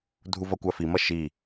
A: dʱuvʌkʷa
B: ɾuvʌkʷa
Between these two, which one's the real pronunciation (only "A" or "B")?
A